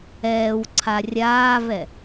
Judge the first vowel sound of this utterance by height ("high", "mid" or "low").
mid